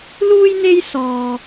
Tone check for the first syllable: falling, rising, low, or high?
high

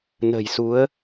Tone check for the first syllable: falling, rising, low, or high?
low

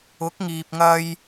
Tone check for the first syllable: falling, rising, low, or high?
rising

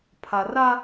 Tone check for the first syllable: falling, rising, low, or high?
low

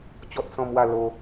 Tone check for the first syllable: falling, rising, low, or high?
high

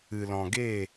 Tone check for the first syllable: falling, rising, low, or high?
low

